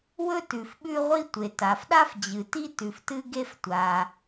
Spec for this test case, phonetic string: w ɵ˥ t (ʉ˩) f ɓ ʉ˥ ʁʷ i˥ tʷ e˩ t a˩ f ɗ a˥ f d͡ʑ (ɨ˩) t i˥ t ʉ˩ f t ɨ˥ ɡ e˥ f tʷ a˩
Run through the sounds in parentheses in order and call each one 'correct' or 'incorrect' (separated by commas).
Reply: correct, correct